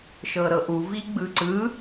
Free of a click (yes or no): no